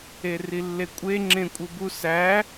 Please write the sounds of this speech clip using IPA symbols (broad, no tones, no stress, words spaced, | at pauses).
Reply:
erilːekʷʼe ŋ͡ǁẽkʷʼɯbu sæ